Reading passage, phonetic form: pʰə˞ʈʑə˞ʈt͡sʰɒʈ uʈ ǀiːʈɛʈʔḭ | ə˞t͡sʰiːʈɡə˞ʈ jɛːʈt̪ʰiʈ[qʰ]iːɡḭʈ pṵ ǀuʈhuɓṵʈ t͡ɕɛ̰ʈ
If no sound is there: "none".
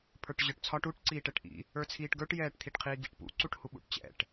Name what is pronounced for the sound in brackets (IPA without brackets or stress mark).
qʰ